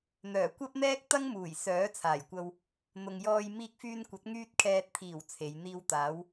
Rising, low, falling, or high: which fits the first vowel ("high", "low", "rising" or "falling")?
low